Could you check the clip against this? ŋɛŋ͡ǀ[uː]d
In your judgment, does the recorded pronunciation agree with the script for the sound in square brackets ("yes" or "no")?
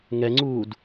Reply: yes